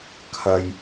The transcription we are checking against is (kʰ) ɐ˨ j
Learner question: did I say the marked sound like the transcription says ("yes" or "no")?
yes